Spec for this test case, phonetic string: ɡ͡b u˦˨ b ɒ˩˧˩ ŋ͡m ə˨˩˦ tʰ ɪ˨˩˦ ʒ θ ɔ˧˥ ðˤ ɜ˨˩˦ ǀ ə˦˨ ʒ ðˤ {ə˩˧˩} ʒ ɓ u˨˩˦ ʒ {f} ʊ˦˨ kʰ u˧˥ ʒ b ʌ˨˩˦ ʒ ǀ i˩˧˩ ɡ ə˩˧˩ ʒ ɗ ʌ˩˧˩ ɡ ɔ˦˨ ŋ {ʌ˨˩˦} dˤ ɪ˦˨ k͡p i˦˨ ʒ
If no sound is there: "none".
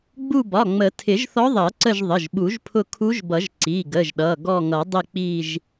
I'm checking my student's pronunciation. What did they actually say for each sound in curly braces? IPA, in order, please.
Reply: ə˩˧˩, pʰ, ʌ˨˩˦

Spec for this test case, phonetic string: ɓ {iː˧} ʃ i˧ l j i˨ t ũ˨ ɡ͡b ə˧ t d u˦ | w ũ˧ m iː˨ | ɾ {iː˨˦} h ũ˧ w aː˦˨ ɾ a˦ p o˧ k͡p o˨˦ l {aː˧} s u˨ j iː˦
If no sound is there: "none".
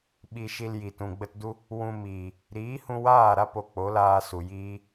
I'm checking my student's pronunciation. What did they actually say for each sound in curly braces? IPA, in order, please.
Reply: i˧, iː˨˦, aː˦

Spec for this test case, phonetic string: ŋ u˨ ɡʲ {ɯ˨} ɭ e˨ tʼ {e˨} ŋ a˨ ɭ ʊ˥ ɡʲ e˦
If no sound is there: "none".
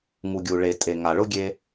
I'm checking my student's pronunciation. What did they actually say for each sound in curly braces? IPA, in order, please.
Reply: u˨, e˨

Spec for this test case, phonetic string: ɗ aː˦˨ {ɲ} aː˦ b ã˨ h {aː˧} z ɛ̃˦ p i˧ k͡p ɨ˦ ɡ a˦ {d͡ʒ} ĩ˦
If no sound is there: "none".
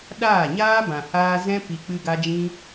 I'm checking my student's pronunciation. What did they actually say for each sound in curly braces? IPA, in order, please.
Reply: ɲ, aː˧, d͡ʒ

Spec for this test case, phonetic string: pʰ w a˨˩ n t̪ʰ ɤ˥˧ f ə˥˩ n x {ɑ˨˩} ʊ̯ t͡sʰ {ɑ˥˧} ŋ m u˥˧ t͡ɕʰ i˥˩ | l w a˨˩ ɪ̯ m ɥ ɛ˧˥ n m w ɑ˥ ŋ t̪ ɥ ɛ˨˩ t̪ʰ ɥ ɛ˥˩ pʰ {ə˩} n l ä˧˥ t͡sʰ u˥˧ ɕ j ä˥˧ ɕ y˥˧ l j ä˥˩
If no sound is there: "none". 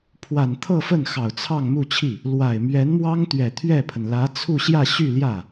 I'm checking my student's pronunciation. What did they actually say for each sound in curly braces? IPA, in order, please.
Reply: ɑ˨˩, ɑ˥˧, ə˩

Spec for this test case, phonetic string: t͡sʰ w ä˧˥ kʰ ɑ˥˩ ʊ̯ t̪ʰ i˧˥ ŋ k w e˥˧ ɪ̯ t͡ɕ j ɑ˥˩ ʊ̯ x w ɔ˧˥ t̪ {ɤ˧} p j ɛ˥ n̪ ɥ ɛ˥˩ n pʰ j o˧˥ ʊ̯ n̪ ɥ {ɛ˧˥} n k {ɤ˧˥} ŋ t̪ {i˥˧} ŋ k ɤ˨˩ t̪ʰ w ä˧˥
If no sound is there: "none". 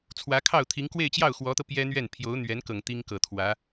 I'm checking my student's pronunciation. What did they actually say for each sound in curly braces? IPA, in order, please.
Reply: ɤ˧, ɛ˧˥, ɤ˨˩, i˥

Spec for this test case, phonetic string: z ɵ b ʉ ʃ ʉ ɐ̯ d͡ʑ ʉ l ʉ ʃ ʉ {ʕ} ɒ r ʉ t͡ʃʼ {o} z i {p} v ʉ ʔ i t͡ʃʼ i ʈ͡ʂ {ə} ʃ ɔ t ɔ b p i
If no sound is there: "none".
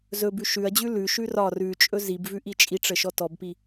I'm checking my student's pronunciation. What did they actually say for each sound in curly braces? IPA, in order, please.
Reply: r, ɵ, b, ə

